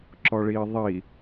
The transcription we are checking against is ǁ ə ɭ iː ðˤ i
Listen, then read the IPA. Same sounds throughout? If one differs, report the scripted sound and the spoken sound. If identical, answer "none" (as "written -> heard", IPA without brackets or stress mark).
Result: ə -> ɔ